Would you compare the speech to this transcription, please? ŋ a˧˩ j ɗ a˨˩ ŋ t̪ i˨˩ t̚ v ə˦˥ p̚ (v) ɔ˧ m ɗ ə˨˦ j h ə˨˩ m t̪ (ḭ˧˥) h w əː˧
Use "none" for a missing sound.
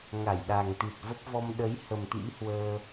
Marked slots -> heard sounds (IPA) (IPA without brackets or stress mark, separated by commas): v, ḭ˧˥